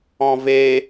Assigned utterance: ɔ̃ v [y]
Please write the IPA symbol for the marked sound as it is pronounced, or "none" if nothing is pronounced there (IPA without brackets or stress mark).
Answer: e